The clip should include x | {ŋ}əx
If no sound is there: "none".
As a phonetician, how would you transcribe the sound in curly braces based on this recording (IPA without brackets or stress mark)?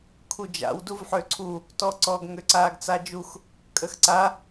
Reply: kʼ